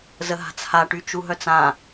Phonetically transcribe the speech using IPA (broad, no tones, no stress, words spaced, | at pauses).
zəɦa̤t͡shaʈy t͡ʃuɦœt͡sã